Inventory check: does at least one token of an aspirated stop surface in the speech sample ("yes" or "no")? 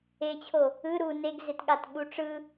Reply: yes